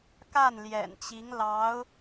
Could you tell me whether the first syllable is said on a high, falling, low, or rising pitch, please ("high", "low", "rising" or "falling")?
falling